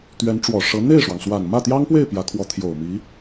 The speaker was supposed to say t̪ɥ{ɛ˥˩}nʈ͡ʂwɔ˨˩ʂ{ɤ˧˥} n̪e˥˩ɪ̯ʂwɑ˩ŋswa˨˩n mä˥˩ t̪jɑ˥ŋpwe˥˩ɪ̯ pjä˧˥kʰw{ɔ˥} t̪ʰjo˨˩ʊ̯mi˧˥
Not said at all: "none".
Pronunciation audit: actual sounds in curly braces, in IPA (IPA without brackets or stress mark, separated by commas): ɛ˧˥, ɤ˧˥, ɔ˧˥